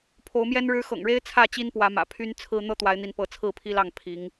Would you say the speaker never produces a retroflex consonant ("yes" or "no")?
no